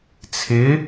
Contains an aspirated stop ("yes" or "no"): yes